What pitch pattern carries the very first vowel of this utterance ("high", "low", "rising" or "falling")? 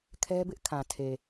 high